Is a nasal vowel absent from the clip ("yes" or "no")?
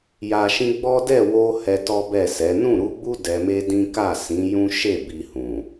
no